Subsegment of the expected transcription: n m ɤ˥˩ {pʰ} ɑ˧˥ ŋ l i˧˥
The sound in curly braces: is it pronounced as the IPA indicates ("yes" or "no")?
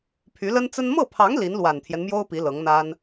yes